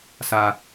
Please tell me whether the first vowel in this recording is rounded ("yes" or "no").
no